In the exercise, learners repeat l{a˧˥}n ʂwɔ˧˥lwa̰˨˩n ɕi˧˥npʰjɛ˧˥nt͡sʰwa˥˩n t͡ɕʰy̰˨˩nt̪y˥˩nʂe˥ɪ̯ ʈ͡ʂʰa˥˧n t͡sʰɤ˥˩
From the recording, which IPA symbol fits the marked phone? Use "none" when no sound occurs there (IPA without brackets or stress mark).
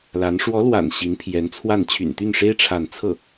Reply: a˧˥